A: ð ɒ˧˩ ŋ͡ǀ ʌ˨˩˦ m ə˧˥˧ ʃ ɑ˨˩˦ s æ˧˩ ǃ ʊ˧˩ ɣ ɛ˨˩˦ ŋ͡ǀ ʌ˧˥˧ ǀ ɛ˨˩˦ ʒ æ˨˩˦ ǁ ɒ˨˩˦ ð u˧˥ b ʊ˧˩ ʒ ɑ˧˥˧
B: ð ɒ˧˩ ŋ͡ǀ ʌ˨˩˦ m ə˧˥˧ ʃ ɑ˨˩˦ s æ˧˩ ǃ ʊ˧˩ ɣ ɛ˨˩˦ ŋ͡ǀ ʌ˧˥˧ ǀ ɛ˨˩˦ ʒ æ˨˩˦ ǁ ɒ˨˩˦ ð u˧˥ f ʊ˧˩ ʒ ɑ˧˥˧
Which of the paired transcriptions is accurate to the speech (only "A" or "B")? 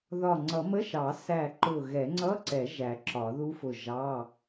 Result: B